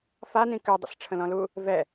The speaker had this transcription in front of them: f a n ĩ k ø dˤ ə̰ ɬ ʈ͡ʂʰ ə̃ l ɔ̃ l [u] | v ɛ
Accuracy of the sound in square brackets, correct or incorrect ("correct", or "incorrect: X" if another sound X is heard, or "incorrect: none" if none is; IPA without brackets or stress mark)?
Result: correct